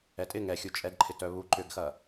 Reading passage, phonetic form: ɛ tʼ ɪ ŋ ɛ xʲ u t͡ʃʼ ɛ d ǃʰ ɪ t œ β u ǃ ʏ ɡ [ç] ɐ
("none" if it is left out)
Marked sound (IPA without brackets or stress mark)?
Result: x